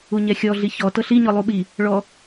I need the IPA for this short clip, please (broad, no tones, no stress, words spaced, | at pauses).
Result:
uɲɛxʲɔ ɮiçɔ tɤɬi ɲɔlˠuɓi | ɭɔ